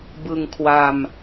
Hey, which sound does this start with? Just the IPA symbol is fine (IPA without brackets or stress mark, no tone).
b